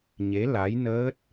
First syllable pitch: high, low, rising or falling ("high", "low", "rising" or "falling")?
rising